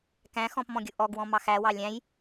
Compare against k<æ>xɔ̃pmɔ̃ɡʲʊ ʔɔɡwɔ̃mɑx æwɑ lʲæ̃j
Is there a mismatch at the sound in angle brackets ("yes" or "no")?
yes